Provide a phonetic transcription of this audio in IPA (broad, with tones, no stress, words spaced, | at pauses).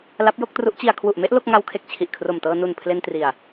la˦˥p̚jo˥˩k̚tru˦˥ʔt͡ɕi˧a̯ kʰwu˨˩ʔme˥˩ʔ lo˥˩k̚ŋa˦˥wkʰe˨˩k̚ t͡ɕʰi˨˩ʔkʰro˨˩mtɤː˧ nu˨˩n pʰle˧ntri˨˩a̯